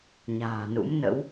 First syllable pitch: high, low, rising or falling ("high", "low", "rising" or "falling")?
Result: low